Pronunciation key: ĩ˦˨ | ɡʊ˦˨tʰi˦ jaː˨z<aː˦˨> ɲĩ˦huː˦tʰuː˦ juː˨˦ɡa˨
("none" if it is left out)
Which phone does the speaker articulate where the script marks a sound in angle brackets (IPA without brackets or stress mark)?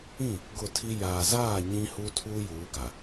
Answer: aː˦˨